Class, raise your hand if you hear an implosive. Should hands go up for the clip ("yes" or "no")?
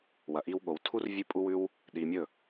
yes